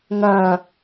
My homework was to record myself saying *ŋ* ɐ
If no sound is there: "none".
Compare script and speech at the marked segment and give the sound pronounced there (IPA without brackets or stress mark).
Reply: ŋ